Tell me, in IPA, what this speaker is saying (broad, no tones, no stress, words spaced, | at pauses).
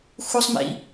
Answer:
xusˤmḭ